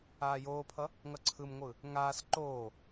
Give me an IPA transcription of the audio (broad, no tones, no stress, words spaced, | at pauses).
aːjoːpʰʌ | ŋʌǀʰɯmŋʷɯ | ŋaːs ǃoː